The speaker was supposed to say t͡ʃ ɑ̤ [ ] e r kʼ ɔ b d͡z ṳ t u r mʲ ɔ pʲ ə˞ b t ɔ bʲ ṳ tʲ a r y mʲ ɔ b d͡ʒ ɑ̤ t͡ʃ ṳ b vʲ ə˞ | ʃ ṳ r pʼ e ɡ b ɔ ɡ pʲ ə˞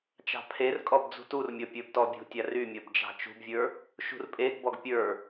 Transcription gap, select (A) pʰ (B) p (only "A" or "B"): A